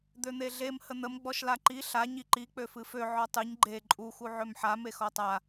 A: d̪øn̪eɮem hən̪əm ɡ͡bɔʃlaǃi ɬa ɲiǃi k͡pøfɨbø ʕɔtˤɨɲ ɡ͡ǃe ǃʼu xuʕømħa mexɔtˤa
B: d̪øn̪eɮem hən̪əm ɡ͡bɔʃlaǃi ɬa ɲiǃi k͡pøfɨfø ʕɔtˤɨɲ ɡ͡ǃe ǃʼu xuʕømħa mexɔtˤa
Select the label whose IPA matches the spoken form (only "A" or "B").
B